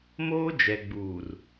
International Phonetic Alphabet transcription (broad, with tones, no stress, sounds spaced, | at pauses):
m oː˦ d͡ʒ ɛ˨ ɡ͡b uː˨ r